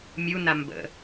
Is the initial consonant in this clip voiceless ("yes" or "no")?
no